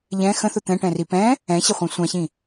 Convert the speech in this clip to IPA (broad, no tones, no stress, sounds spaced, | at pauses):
ʎ ɛ̃ x ə̃ θ ʊ t̪ ɛ̃ ʈ ɛ̃ r i p ɛ̃ | ɛ̃ ɕ ɪ χʷ ɛ̃ sʷ ã ɕ ĩ